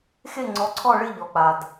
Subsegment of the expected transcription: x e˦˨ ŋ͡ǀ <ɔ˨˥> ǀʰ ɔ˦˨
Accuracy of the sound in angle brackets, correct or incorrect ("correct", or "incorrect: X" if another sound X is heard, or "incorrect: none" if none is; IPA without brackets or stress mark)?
correct